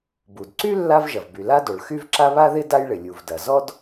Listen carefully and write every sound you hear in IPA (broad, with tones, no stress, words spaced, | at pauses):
bu˩dǀy˥ lːa˥vʒɐ˩v by˩la˥ do˩ɭxy˥vǁa˥ βa˥ðɪ˥ da˥jɭɪ˩lʲu˩vdɐ˩ zɔ˥d